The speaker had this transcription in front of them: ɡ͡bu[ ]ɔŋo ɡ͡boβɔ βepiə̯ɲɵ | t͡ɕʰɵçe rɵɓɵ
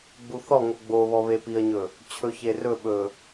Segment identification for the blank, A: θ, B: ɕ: A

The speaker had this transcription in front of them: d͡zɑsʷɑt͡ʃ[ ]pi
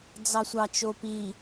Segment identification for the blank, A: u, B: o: B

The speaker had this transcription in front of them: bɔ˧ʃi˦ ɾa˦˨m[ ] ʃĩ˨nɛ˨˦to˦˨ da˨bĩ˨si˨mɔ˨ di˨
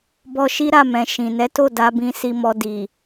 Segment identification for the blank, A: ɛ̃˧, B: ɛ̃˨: B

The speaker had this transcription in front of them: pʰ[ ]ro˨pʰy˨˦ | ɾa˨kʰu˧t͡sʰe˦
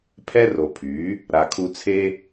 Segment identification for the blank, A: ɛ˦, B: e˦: A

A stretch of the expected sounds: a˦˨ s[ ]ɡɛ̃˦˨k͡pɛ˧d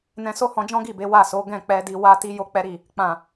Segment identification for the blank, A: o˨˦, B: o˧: A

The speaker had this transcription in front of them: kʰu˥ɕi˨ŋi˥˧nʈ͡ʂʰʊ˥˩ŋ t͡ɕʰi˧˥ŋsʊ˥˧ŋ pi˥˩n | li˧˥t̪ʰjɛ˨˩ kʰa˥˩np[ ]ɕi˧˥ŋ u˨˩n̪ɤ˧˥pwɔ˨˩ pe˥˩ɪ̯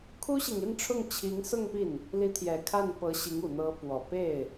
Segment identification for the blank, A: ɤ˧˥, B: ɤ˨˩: A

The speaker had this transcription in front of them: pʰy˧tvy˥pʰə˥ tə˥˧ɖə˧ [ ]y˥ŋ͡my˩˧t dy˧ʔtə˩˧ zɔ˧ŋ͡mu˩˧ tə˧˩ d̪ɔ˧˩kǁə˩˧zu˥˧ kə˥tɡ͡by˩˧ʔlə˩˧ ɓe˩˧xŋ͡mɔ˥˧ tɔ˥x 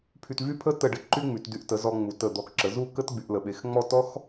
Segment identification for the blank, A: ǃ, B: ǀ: A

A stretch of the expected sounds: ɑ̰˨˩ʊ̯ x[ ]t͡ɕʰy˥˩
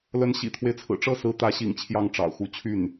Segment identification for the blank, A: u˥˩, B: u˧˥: B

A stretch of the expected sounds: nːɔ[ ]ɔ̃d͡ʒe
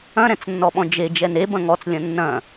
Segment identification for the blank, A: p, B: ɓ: B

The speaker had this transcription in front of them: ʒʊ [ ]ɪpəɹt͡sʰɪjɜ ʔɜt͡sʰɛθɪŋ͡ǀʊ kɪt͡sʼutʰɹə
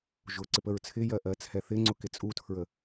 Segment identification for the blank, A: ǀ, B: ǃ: A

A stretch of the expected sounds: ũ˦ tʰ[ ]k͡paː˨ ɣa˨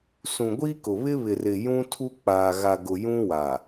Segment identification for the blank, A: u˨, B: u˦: B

